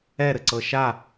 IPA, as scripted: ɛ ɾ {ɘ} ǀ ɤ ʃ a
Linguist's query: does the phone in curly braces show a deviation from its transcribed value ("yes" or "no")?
no